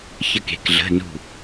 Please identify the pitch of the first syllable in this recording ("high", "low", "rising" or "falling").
falling